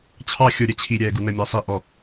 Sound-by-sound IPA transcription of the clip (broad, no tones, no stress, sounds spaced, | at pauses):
t͡ɕʰ ɑ xʲ ʊ ɾʲ ɛ t͡ɕʰ i ɾʲ ɛː ɡ u n ə mʲ æ sˤ i ʔ ɔ